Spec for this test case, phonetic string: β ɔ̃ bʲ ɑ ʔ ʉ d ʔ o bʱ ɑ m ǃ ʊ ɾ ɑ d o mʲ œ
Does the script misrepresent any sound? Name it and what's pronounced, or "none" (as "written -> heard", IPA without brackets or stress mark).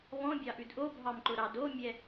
œ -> ɛ